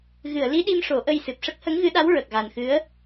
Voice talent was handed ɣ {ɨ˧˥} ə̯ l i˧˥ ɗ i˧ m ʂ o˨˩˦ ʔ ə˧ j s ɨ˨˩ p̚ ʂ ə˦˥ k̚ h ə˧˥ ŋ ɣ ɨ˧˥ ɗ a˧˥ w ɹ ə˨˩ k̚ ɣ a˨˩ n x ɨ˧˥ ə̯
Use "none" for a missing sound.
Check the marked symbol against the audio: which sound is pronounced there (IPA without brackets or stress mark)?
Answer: ɨ˨˩˨